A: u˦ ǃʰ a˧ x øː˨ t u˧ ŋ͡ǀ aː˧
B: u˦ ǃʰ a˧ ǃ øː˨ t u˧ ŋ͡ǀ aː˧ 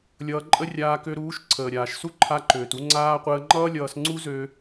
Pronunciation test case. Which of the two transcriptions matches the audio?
B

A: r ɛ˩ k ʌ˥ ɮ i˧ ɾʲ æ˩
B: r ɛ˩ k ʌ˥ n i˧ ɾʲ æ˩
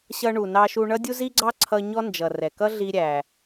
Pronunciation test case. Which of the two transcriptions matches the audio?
A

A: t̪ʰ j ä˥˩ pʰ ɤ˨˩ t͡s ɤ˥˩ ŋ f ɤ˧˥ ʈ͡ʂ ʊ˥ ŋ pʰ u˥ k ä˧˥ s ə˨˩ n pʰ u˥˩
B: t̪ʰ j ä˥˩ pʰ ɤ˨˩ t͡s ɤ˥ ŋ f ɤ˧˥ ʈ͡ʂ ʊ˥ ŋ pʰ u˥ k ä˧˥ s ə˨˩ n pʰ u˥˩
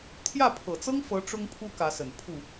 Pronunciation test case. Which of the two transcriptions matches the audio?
B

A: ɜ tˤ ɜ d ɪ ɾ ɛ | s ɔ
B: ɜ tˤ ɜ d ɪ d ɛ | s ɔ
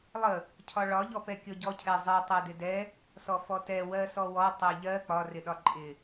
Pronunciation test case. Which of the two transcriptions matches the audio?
B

